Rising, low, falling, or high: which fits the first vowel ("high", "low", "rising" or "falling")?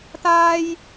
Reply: high